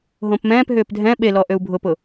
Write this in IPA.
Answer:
ɦ õ p m ɛ̃ː p ɦ ʏː p dʱ ɛ̃ ɓ e l ɔ ʔ ø u̯ bʱ ʊ p ʊː

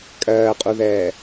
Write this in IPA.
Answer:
kʼ ɜː qʼ u ð ɛː

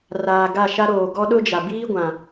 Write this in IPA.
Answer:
r aː˨ ɡ a˦˨ ʃ a˦ ɾ oː˨ ɡ ɔ˦ ɗ ʊ˦ d͡ʒ a˨ b iː˦ ɡʷ ã˨

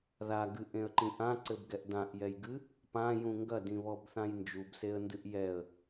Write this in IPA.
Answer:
ð a ɡ ɨ ʔ ẽ ə̯ ǃ ĩ ʔ ã ǀ ɘ b ɡ ɛ ʔ d ã ʔ j ɛ j ɡ ɨ | p ã j ũ ŋ ɡ ɐ d ĩ β ɔ b θ ã j n d͡ʒ u b s e ə̯ n d ɨ ʔ j ɛ ə̯

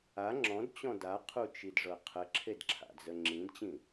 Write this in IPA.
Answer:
a ŋ͡ǁ ɔ̃ d t͡ɕ ɔ̃ d a qʰ u t͡ʃ i d ʐ ɤ qʰ ə ǁʰ e d ǁʰ a̰ d͡z ə ŋ͡ǁ ĩ d t͡ɕ ĩ

